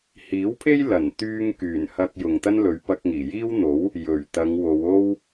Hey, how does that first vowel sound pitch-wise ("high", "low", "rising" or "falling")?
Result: rising